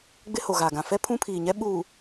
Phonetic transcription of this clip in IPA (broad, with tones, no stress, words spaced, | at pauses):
ɡ͡bɪ˦ho˨ɣa˨ɡã˨ fɛ˦pʰũ˦pʰiː˨ɲɛ˦ ɓuː˨